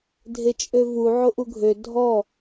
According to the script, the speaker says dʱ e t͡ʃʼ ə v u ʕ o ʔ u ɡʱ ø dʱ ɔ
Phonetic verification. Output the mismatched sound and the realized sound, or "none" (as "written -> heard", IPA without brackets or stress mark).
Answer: ə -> ø